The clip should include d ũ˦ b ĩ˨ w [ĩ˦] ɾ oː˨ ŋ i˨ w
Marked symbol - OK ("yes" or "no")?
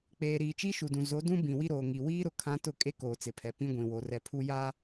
no